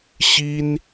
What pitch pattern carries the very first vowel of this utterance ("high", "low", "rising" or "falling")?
high